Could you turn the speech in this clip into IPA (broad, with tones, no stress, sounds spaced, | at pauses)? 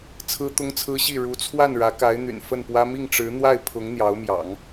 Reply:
t͡sʰ ɹ̩˥ t̪ ʊ˥ ŋ t͡sʰ ɹ̩˥ ɕ i˥˩ ɻ u˧˥ t͡sʰ w a˥˩ n ɻ ä˧˥ k a˧˥ ɪ̯ n̪ y̰˨˩ n f ə˥˩ n p w ä˥ m i˥˩ ŋ ʈ͡ʂ ɻ̩˧˥ n̪ w a˥˩ ɪ̯ pʰ ʊ˧˥ ŋ n̪ j ɑ˧˥ ʊ̯ m j ɑ̰˨˩˦ ŋ